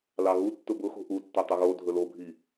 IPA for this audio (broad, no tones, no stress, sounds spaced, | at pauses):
l ɑ ɣ u tː ʊ b ʊ x o̤ ʔ u tː o tˤ ʊ ɣ o dʱ ɵ l o bʱ i